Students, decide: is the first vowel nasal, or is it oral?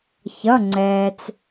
oral